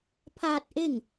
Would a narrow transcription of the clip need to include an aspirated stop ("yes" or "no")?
yes